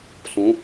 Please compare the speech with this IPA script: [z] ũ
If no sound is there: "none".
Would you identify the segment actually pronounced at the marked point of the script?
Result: s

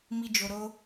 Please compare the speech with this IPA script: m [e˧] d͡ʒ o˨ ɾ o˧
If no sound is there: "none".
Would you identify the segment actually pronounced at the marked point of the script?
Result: i˧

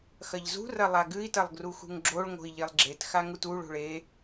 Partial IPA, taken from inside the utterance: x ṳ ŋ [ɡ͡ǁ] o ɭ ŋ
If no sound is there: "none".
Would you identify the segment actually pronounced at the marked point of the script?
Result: ɡ͡ǁ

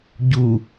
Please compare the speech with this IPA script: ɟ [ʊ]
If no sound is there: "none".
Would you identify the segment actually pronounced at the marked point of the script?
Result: u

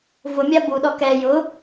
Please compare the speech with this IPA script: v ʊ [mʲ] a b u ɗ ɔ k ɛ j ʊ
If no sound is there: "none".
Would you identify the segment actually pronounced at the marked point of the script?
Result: mʲ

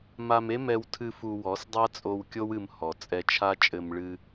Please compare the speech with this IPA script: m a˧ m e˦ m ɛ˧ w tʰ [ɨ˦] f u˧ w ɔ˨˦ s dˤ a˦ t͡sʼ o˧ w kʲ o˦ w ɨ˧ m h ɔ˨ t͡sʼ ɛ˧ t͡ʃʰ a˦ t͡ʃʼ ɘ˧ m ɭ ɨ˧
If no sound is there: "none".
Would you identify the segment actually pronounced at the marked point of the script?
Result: ɨ˧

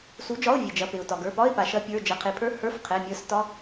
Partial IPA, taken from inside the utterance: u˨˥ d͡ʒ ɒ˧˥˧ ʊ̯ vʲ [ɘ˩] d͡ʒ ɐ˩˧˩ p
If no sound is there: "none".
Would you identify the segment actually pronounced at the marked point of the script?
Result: e˩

